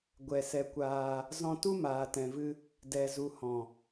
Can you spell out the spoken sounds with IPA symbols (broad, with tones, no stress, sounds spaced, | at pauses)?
ɡʷ ɛ˧ s ɛ˧ kʷ aː˧ | z ɔ̃˦ t u˦ m aː˨ t ɛ̃˨ v ɨ˧ | d ɛ˨ z u˨ h ɔ̃˨